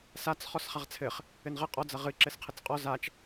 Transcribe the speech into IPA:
sat͡s χɔsχaʁt͡sʰɘχ | ɘnʁɘ qʼɔ d͡zɐʁɨ ǁɘsqʰɘt͡sqʼɔ zat͡ʃ

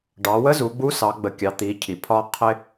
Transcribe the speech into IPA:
ɖɑ˩˧wə˧˥zu˩˧ ɡ͡bu˧˥sɑ˩˧ɡ͡bə˩˧kʲɑ˩˧ t̪i˩˧cʰi˩pʰɒ˧ qʰɪ˧

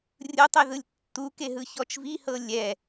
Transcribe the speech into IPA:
rʲɯtˤeðɯlʲ tːukeɦɯçɔt͡ʃ vihɤ lʲɛ

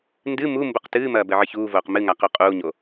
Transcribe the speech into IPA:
ndɨ mumbuq tɨːmɐː bɘʕɨçuːvoːq mɨŋa quqʼuːɲo

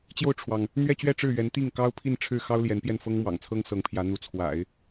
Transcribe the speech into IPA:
t͡ɕjo˥˩ʊ̯ʈ͡ʂʰwɑ˩ŋ | n̪ɥɛ˥˧t͡ɕɥɛ˥˧ ʈ͡ʂɻ̩˥˩ɥɛ˧˥n t̪i˥˩ŋkɑ˥ʊ̯pʰi˥˧n ʈ͡ʂʰɻ̩˥˩xɑ˥ʊ̯ ljɛ˧˥npjɛ˥˩n fɤ˥ŋmwɑ̰˨˩ŋt͡sʰɤ˥ŋ sɤ˧˥ŋpʰjä˧˥n̪u˧˥ t͡sʰwa̰˨˩˦ɪ̯

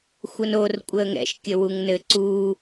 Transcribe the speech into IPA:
xʷənor kʷʼəːŋɛ̰ʃ kʲəwuŋnɘ ǀuː

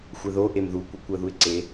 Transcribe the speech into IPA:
xʷɛðo ʔemðu kʷikʷɜðuɪ̯ǀe

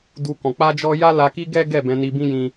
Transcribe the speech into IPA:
du˦kɔ̃˧ k͡pa˦d͡ʒɔ˦ ja˦la˧ ki˦ɡɛ˦ ɡɛ˦˨bɛ̃˧ni˧bĩ˦ jĩ˦

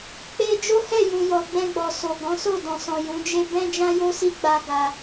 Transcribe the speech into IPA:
k͡pe˦ d͡ʒo˦hɛ˦˨ jũ˨jɔ˨ ɡ͡bɛ̃˧ɡ͡bɔ˨ so˨ ɡɔ̃˨˦so˦˨dɔ̃˨sɔ̃˨ jũ˨˦d͡ʒe˦ bɛ̃˦d͡ʒã˦jo˦si˦ ɡ͡ba˧ ɡa˦

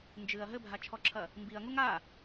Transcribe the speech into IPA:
nd͡ʒɨɐ̯ ɦɘbʱat͡ʃʰɔǁʰɐ | mbiɐ̯ŋuŋ a

